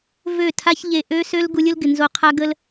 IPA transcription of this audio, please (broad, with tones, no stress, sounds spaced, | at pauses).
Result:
v ø˦˨ tʰ a˦ ç ʎ e˧ ʔ ø˦ s ø˦ l ɡ u˧ lʲ ʊ˦ l ɡ ɪ˨ n z o˧ qʰ a˦ ɡ ə˦ l